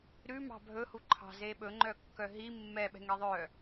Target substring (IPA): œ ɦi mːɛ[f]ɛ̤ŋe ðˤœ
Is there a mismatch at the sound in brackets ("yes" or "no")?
yes